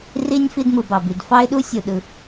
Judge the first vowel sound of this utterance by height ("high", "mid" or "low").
high